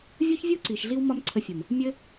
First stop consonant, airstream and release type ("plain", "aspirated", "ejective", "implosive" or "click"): click